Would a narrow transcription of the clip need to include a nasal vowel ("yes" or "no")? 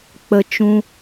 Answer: yes